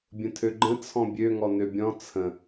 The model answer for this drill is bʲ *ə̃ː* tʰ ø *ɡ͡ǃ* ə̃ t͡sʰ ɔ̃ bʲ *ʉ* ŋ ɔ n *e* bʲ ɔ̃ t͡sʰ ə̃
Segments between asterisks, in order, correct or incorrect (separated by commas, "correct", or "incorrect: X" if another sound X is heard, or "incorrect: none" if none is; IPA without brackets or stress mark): incorrect: ə̃, correct, incorrect: ø, incorrect: ø